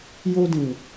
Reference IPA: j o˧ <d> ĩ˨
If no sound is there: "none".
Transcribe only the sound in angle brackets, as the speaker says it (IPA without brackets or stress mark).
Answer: d